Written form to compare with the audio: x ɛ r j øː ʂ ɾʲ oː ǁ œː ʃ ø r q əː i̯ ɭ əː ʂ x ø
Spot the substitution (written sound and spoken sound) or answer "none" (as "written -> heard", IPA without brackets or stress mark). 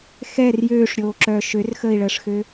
q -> x